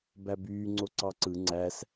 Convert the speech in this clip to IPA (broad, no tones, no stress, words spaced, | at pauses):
bæbyː ŋ͡ǀoǀɑǀɯ ŋ͡ǀæs